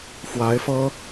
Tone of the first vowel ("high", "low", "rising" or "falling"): rising